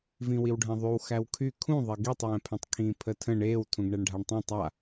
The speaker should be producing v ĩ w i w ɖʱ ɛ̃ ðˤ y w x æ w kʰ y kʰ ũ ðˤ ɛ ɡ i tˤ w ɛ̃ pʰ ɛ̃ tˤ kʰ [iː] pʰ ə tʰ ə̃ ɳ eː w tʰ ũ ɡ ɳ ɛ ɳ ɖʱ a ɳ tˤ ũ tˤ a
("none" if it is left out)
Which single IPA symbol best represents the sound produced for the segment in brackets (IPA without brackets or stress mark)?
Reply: ĩː